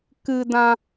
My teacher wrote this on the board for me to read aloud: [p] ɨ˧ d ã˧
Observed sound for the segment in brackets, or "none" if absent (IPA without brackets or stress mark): k